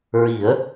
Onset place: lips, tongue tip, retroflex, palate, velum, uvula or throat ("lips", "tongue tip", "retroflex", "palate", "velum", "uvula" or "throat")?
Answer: tongue tip